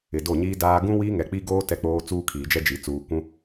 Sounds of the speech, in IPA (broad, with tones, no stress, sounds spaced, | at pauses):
ɪ˨ d o˦˨ ɲ iː˦ d aː˦ ɡ ũ˦ w iː˦ ŋ ɛ˨ k͡p i˦ ɡ oː˦ t ɛ˦ k͡p oː˦ t͡s uː˦ kʰ iː˨ d͡ʒ ɛ˦ d͡ʒ i˨ t͡s uː˨ kʷ ũ˦